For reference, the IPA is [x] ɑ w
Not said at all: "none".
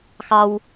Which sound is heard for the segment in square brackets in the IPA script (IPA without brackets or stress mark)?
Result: x